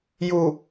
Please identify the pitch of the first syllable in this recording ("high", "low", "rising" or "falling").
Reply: low